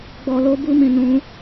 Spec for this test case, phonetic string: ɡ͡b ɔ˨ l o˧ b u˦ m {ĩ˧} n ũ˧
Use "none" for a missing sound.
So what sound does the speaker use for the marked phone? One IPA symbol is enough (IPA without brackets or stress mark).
ĩ˧